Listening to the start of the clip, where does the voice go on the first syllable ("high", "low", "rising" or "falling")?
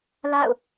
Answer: falling